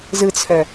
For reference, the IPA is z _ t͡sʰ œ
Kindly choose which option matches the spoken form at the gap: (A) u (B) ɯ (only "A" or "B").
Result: B